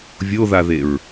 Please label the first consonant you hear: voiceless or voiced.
voiced